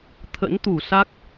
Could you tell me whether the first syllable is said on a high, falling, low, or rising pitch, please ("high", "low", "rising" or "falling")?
rising